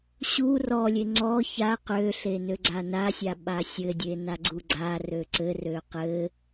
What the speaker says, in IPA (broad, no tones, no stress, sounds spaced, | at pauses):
ɕ u r ɔ lʲ e ŋ͡ǀ ɔ ç a q ø ɬ e n ø ɡ͡ǀ a n a sʲ a ɓ a sʲ ɘ dʲ e n a ɡ͡ǀ u ɡ͡ǀ a r ø ǀ ɘ r ø q ɘ